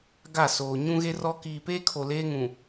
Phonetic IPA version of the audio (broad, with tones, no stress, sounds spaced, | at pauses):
ɡ a˦˨ s oː˨ ɲ ũ˦ ɣ e˦ r ɔ˦ k iː˨ p eː˦ kʰ o˨ l eː˦ ŋ ũ˨